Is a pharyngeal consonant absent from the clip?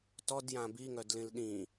yes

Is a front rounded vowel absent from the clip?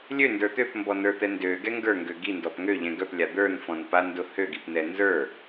no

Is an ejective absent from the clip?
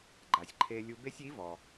yes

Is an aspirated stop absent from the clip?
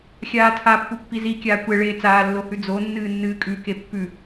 no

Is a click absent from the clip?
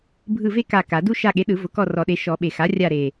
yes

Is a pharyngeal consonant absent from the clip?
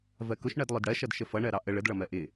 yes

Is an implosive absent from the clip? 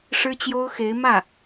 yes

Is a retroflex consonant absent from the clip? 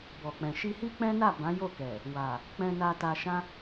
yes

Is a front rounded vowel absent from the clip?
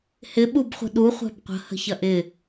yes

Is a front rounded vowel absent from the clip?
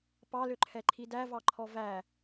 no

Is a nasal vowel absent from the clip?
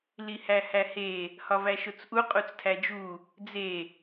yes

